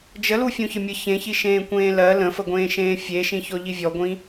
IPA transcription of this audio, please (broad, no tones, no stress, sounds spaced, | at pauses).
d͡ʒ ə l u fʲ ũ ç ə mʲ ə ç ẽ ç i ʃ ẽː kʷ ẽː l ɜ l ə̃ f ə ɡʷ ẽː ʃ ẽː fʲ e ʃ ĩ ç ɔ ʎ i vʲ ɔ ɡʷ ĩ